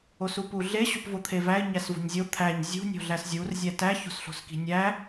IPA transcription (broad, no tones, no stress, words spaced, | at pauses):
osupuɮe ɕupvot̪ʰevæɪ̯ ɲæsvo̤ɲzʲo t̪ʰæɲ zʲṳ nʲo̤ɮæszʲur zʲætæ ço̤sɬo̤ski̤nʲæ